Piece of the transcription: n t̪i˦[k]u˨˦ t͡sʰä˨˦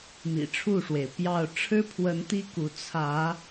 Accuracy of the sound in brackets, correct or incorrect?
correct